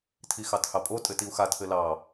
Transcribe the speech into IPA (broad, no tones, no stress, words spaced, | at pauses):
tʰixɑthɑpʼo tʼɘtiu̯xa tʰɘlɑ